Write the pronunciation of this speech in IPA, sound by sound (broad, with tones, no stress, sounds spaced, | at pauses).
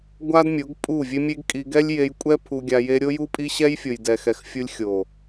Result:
ɡʷ a˦ d mʲ o˨˦ ɡ pʼ u˦˨ vʲ e˦ mʲ e˦ ɡ kʼ i˧ ɡ ɛ˦ lʲ j e˧ j kʷʼ ɛ˦ pʰ u˧ ɡʲ a˧ j e˦ ɾʲ o˦ j u˦ pʼ i˦ ɕ ɛ˦ j fʲ o˨ j d ɛ˨ x ɛ˨ x fʲ u˧ lʲ xʲ o˨